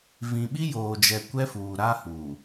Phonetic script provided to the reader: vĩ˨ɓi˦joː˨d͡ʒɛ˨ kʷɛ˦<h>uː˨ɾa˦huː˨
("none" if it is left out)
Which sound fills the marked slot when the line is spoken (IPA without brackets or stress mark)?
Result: f